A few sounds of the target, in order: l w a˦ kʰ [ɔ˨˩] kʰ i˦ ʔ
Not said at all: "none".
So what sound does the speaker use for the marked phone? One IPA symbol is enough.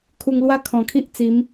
ɔ̃˨˩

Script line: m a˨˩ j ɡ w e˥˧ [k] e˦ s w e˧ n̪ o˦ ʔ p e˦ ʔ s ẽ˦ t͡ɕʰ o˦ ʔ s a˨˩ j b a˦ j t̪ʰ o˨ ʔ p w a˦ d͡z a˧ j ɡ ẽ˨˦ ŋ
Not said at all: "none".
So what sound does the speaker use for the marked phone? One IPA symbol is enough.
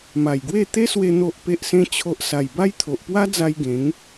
t̪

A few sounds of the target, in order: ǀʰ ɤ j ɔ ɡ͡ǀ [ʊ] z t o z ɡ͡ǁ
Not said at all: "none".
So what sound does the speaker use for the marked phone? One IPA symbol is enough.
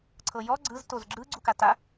ɯ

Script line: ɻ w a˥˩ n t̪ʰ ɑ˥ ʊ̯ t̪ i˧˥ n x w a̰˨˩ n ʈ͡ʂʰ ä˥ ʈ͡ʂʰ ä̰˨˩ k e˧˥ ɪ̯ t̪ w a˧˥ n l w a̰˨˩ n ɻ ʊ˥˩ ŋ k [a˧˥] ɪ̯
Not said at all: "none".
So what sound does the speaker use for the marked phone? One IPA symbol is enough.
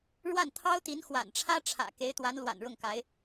a˧˥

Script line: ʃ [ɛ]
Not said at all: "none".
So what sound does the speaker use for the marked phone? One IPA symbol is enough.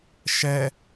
ɛ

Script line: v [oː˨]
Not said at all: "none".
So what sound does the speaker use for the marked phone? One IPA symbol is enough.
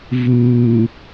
uː˨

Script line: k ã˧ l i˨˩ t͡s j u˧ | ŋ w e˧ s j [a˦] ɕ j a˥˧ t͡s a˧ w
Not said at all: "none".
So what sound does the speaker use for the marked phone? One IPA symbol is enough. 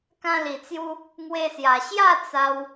a˨˩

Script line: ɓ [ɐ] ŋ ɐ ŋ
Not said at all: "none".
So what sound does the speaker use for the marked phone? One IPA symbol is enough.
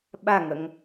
a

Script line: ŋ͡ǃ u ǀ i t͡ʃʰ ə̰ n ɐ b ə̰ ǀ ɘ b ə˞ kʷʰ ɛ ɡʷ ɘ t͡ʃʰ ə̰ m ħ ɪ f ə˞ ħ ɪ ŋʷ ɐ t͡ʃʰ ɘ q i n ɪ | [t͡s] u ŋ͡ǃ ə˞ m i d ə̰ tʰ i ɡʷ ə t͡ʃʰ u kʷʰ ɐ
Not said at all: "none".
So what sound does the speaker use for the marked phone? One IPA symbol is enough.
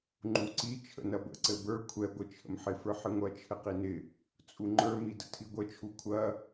t͡sʼ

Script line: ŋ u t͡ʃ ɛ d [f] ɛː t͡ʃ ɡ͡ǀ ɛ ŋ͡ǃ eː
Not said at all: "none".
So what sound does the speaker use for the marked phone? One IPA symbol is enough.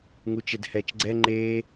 h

